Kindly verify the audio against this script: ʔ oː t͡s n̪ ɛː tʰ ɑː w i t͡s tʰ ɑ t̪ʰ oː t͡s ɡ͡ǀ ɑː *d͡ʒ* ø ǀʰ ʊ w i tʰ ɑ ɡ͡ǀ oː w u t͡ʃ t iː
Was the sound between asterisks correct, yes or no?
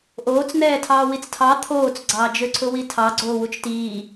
yes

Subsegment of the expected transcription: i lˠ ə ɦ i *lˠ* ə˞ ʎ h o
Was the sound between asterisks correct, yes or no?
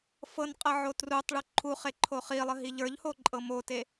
no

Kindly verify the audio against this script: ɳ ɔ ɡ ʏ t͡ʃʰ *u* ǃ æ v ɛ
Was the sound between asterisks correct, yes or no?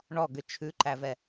no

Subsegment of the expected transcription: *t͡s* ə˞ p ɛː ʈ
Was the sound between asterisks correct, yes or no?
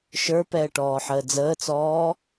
no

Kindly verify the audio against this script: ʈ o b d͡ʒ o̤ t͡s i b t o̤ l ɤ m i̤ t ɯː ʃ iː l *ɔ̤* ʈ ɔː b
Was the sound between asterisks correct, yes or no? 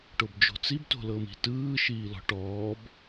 yes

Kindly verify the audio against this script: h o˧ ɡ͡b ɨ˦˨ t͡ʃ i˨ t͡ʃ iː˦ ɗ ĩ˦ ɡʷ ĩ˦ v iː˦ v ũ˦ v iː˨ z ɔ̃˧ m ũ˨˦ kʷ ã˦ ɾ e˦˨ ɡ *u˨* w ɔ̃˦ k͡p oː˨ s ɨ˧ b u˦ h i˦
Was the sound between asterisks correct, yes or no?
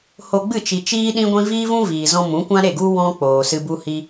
no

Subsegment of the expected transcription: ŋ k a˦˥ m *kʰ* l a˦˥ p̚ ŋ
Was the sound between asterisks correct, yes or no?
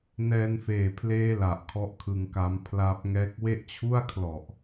no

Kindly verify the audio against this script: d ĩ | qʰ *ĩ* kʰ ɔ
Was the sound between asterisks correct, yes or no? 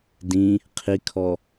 no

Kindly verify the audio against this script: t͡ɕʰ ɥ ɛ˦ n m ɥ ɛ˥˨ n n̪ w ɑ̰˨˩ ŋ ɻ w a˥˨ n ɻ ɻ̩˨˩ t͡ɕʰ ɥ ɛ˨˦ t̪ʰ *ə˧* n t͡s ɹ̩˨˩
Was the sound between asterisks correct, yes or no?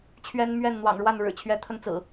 yes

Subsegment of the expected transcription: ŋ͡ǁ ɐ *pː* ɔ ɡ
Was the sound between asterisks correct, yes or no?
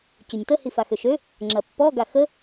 yes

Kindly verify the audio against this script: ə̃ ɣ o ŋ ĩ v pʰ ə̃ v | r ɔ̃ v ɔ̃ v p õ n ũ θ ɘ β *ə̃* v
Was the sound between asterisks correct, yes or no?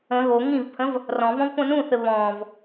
no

